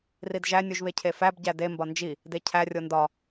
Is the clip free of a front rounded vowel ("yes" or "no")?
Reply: yes